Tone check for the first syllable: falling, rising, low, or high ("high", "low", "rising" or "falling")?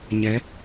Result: rising